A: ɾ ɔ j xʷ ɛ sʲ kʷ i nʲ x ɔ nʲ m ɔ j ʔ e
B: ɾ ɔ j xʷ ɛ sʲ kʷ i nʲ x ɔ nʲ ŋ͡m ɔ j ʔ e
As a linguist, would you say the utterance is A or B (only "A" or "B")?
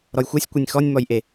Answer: A